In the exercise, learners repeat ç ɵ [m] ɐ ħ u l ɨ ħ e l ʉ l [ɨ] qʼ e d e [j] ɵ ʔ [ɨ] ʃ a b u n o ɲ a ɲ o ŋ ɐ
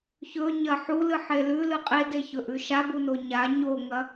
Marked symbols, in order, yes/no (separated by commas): no, yes, no, no